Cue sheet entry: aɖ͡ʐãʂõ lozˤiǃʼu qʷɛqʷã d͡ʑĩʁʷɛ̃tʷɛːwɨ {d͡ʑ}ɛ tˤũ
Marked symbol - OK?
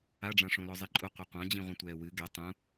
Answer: no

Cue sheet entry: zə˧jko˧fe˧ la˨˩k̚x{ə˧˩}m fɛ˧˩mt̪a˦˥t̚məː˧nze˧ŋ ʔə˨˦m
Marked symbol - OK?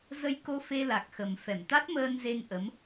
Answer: no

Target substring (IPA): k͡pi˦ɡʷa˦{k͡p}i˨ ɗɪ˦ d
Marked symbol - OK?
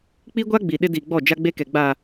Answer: no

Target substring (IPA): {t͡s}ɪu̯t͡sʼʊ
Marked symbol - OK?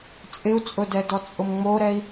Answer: no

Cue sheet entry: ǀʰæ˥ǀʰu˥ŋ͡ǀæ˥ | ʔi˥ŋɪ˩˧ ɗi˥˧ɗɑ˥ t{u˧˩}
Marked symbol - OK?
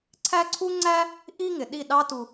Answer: no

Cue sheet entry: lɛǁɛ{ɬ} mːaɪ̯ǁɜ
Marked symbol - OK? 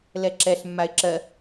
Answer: yes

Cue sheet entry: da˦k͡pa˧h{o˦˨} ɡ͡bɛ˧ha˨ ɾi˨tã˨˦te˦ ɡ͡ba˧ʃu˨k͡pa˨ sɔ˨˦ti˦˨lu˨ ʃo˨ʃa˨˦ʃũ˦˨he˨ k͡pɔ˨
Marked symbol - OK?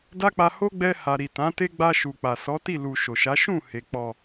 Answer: no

